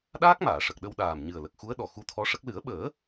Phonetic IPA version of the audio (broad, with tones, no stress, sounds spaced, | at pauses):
ɗ aː˦˥ k̚ m aː˨˩˨ ʂ ə˨˩ k̚ ɗ ə˧ w ɗ aː˨˩ m ɲ ɨ˨˩ ə̯ l ə˨˩ k̚ x u˧˥ ə̯ ɗ ɔ˨˩ x u˧ t̪ʰ ɔ˧˥ ʂ ə˦˥ k̚ l ɨ˨˩˦ ə̯ ɓ əː˨˩˦